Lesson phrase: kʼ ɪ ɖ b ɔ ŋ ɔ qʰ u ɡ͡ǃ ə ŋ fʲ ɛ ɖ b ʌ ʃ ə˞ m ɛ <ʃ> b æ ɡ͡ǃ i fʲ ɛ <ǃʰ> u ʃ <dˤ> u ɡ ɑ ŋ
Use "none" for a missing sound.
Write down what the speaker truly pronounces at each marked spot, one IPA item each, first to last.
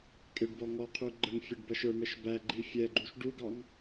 ʃ, ɡ͡ǃ, ɖ

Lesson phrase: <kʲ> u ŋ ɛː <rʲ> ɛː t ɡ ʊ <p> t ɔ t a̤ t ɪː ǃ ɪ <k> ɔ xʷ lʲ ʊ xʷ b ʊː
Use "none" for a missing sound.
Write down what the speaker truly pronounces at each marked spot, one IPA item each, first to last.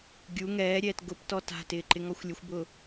ɡʲ, ɾʲ, p, ŋ

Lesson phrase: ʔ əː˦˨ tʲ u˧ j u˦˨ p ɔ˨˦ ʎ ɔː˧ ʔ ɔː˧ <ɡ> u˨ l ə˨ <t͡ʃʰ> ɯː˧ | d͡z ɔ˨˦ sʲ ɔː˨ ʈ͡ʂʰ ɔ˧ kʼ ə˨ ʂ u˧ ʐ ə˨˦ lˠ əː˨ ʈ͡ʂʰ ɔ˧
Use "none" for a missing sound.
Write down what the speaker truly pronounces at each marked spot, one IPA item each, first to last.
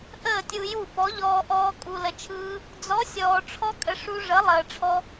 kʼ, t͡ʃʰ

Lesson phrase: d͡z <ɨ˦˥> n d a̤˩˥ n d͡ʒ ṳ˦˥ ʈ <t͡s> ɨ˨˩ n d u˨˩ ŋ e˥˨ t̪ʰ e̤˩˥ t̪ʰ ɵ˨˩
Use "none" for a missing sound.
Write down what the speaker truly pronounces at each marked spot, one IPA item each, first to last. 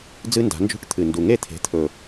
ɨ˦˥, t̪ʰ

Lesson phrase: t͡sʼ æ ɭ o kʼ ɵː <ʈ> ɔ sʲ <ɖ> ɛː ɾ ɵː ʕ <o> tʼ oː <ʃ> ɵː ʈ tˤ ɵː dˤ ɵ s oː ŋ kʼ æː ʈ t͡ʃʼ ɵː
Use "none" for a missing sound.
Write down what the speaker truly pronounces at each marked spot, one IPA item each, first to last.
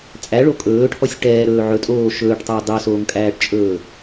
ʈʰ, ʈ, ɵ, ʃ

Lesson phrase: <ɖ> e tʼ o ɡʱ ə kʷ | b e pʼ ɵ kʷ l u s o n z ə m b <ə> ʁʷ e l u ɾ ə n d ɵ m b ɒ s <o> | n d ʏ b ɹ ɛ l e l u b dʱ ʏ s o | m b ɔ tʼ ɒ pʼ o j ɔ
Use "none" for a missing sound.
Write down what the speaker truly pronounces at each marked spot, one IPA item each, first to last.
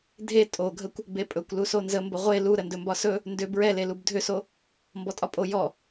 dʱ, ə, ɵ

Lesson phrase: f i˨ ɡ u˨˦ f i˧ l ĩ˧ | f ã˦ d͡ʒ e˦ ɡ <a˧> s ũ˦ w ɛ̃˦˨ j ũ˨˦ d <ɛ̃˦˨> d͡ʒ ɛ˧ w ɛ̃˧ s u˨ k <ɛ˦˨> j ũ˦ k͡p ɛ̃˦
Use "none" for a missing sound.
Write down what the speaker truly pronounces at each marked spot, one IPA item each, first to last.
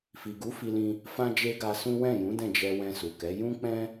a˧, ɛ̃˦˨, ɛ˨˦

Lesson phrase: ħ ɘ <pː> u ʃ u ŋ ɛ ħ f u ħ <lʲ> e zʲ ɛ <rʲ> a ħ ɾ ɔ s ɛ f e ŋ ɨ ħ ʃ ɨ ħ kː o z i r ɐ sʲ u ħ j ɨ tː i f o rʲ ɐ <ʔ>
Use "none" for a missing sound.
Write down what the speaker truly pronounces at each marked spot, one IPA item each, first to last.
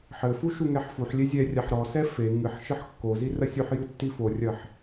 f, lʲ, rʲ, ħ

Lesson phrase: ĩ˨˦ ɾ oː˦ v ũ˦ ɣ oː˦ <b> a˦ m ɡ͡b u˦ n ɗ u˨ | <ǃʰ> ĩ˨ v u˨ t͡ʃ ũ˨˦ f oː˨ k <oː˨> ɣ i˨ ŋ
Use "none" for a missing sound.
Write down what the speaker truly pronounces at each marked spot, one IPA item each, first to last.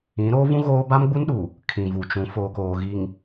b, kʰ, oː˨

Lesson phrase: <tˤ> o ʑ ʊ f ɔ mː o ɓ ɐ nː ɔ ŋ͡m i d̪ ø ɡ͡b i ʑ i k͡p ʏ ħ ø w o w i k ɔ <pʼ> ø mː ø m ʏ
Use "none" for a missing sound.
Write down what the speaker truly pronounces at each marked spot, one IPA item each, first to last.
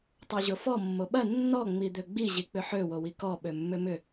tˤ, ɓ

